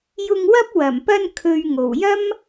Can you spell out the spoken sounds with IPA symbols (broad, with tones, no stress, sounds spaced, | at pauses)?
j ʊ˧ ŋ w ɐ˥ p̚ w ɐ˨˩ m p ɐ˧ n kʰ ɵ˨ ɥ ŋ o˨˩ w j ɐ˥ m